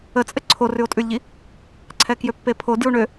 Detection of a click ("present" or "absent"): present